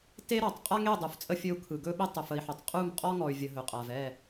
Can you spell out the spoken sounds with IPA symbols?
t e˦ ɾ ɔ˨ tˤ qʼ a˦ ŋ e˦˨ dˤ u˨ f t͡sʼ ə˦ fʲ ɵ˦ u̯ kʰ ɯ˨ ɡ ɵ˦ ɓ e˦ tˤ ʊ˨ f ə˨ i̯ ħ ɵ˨ tˤ qʼ u˦˨ m qʼ ɔ˦ ŋ ɔ˨ y̯ vʲ ə˨ ɦ ɵ˨ qʼ a˨ v ɛ˦˨

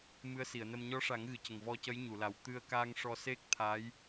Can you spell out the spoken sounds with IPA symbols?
m ɨ˧˥ ə̯ s i˨˩˨ ə̯ n ə˧ m ɲ ɔ˧˥ ʂ a˨˩˦ ŋ ɣ ɨ˨˩ c ə˨˩ ŋ v ɔ˧ c ə˧˥ j ɲ u˨˩˨ l a˨˩ w t̪ ɨ˧ ə̯ k aː˧ ŋ ʂ ɔ˧ s e˦˥ k̚ t̪ʰ a˧˥ j

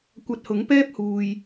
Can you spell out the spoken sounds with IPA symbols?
kʷ ɐ˧ t̚ h ʊ˨˥ ŋ p ɛː˥ p̚ h uː˨ j

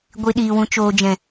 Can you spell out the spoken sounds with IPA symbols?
ɡʷ i˨ ɗ iː˨ w ũ˨ t͡ʃ oː˨ d͡ʒ ɛ̃˨

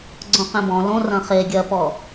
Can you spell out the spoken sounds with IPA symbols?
ɡ͡ǀ õ q ẽ b ɔ̃ l õ r ɐ̃ χ e ɡʲ ɐ p ɔ

